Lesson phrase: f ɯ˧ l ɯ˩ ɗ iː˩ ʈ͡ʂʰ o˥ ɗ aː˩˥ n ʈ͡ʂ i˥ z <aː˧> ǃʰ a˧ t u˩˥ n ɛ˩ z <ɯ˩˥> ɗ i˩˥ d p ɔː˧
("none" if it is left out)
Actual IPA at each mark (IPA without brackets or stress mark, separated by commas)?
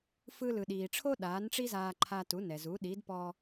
aː˧, u˩˥